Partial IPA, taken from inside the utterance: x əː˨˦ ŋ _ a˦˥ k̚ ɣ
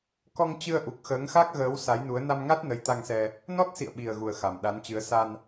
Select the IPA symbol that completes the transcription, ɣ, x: x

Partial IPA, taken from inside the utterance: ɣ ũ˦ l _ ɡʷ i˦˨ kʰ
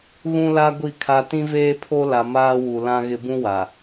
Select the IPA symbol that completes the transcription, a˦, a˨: a˦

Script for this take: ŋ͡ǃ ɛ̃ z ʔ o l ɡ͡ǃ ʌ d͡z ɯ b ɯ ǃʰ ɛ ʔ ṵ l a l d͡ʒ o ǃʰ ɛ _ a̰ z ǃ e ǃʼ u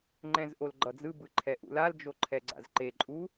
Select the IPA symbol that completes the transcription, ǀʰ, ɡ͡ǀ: ɡ͡ǀ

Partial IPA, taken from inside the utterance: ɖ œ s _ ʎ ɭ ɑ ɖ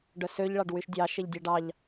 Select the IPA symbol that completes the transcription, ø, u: ø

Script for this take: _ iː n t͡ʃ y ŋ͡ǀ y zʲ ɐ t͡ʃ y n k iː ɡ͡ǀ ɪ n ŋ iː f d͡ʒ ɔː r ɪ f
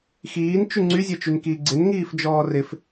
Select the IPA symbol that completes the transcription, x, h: x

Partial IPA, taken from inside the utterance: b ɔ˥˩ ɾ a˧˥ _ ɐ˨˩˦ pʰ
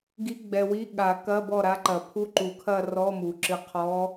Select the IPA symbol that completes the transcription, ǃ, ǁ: ǃ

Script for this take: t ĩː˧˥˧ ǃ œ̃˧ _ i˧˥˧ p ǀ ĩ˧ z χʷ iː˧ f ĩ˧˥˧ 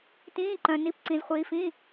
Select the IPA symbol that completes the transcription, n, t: n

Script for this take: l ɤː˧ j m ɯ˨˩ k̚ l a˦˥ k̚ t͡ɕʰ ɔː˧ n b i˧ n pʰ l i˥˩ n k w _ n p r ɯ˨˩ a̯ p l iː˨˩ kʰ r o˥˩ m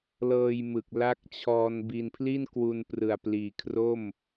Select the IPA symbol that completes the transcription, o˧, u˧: u˧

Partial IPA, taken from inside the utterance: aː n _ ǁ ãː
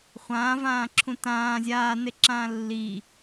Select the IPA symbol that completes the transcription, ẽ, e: e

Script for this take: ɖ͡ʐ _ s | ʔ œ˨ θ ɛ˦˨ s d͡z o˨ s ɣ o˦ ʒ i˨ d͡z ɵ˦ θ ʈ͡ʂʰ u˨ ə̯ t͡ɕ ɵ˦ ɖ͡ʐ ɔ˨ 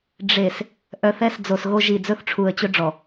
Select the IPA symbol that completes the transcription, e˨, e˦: e˨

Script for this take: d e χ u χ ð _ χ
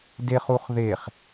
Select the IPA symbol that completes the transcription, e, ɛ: e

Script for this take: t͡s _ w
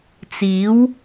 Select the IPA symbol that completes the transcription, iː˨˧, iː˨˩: iː˨˧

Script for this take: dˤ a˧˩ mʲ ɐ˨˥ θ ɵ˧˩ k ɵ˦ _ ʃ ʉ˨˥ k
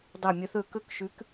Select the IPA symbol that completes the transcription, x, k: k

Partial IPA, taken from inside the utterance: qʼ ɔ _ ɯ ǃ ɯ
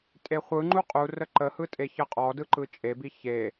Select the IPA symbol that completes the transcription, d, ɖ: d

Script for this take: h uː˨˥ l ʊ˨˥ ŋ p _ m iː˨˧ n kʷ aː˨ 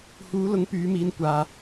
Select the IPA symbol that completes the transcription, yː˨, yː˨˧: yː˨˧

